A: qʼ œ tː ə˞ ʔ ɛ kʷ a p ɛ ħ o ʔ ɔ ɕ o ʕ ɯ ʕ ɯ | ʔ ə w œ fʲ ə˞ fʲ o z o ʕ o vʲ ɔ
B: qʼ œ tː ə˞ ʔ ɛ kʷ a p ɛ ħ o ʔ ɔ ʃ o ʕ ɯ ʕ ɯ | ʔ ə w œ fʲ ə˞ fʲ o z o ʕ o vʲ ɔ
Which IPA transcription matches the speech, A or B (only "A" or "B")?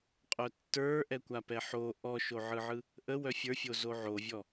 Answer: B